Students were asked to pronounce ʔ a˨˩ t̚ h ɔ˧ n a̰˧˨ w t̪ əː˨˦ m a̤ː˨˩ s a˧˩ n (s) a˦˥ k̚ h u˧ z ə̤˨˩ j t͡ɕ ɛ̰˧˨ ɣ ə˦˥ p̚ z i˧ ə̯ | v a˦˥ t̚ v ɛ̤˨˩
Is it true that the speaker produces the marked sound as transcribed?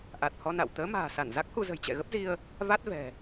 no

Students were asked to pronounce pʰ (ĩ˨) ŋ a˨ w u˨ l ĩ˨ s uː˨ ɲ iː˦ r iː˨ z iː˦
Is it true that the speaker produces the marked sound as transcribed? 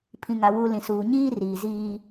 yes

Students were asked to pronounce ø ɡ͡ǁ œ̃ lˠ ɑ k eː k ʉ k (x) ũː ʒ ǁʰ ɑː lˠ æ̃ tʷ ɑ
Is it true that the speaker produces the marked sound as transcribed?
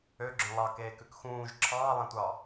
yes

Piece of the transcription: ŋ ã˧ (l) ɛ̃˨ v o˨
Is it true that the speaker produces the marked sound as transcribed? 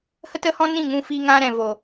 no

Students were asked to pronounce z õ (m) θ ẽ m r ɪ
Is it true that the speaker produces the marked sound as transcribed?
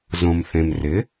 yes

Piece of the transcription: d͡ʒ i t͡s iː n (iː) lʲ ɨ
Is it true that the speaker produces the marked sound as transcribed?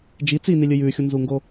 no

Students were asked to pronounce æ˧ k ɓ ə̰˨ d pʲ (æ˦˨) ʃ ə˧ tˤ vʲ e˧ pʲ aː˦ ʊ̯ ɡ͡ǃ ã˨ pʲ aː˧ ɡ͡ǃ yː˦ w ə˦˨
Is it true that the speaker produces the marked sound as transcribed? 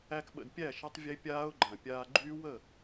yes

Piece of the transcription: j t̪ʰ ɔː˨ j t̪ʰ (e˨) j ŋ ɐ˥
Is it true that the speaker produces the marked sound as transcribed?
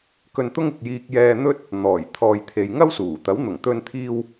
yes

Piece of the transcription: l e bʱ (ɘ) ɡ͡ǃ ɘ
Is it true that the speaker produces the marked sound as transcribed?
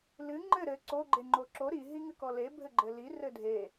yes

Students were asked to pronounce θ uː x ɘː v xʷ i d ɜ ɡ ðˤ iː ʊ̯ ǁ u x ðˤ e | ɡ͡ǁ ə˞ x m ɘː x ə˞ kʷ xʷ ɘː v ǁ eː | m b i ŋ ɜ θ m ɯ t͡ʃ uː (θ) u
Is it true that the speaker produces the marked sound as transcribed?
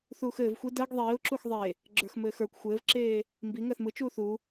yes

